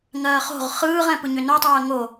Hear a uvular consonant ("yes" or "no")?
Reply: yes